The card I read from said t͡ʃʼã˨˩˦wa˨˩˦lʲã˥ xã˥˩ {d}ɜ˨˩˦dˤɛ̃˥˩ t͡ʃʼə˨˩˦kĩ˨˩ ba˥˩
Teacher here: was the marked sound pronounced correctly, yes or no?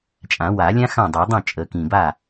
no